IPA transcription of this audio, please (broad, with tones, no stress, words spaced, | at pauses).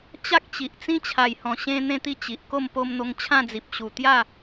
t͡ɕa˦k̚t͡ɕi˨ʔt͡sĩ˦ t͡ɕʰa˨˩jhɔ̃˨˩ɕẽ˧ n̪ẽ˥˧t̪i˥˧ t͡ɕi˨ʔko˥˧m po˧mn̪o˧ŋ t͡ɕʰã˥˧d͡zi˨p̚ ɕu˨˩t̪ja˥˧